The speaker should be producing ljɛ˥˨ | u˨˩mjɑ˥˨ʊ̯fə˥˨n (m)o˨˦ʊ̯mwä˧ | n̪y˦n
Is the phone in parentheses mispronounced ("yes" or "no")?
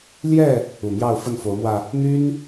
yes